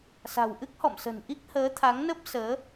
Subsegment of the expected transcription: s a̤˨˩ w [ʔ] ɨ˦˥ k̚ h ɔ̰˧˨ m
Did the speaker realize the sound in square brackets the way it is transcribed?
yes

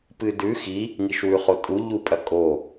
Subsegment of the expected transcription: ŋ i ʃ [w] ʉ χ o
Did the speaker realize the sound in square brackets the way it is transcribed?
yes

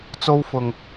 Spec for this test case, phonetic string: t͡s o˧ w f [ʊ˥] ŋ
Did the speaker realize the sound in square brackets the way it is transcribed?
no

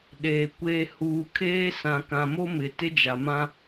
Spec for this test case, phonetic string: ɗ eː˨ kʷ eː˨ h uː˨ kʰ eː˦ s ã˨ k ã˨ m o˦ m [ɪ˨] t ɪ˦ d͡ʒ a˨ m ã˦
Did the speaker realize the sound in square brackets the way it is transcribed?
yes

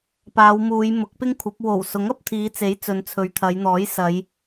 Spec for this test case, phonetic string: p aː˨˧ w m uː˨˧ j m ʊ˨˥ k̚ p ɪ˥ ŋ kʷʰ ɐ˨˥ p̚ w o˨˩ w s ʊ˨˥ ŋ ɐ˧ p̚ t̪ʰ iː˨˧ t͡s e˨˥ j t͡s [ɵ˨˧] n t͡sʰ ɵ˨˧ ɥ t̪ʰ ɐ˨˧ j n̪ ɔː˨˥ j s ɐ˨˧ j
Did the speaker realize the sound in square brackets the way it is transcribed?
yes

